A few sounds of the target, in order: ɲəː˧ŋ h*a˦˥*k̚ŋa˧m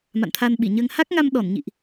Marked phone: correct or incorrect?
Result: correct